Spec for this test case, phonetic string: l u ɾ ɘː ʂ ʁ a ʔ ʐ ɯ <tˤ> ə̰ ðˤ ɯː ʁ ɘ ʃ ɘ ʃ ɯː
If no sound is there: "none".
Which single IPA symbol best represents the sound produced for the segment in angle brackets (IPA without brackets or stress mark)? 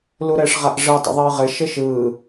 tˤ